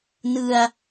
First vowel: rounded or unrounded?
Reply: unrounded